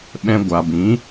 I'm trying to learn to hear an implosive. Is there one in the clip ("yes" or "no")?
yes